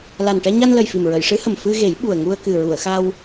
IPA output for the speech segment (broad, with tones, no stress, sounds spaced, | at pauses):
l a˨˩ n ʈ ɛ˧ ɲ a˧ n l ə˨˩ j f i˨˩ m ɹ ə˨˩˨ j ʂ ɨ˧˥ h ə˨˩ m f ɨ˧ ɣ e˨˩˦ j ɓ u˨˩ ə̯ ŋ u˧ ə̯ k ɨ˨˩ ɹ u˨˩˨ ə̯ x a˧ w